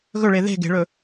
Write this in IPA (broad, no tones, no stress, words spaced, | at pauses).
ɣɵɭe ðe̤ ɡe̤ɭɵ